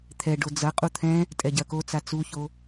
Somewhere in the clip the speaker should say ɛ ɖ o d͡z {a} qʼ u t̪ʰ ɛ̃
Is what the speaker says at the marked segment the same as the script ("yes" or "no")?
no